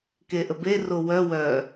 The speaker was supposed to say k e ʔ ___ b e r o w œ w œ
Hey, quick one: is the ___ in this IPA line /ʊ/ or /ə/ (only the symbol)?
ə